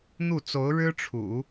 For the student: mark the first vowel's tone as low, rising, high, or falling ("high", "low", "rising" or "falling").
falling